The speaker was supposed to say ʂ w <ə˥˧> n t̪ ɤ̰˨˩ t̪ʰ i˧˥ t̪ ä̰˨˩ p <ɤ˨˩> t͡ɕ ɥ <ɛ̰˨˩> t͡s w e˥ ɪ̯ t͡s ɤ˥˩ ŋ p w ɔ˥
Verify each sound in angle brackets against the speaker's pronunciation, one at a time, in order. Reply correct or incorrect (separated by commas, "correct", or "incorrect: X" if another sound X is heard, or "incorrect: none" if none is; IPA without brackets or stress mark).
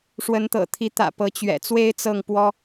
incorrect: ə˧˥, incorrect: ɤ˧˥, correct